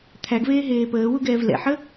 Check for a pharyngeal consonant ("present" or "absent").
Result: present